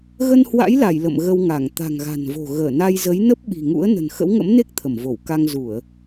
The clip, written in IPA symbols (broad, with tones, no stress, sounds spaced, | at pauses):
ɣ ə˧ n h w a̰˧˥ j l a˧˩ j l ə̰˧˨ m ɣ ə˧ w ŋ a˧˩ ŋ t̪ a̤˨˩ ŋ ɣ a̤˨˩ n v o̤˨˩ ɣ əː˧˩ n a˧ j z ə˨˦ j n ə˦˥ p̚ ɓ i̤˨˩ ŋ ṵ˧˥ ə̯ n ə̤˨˩ n x ə̰˧˥ w ŋ ə̰˧˥ m n e˦˥ k̚ t̪ʰ ə˧˩ m v o˧˩ w k a˧ ŋ z u˧˩˨ ə̯